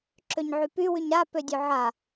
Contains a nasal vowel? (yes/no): no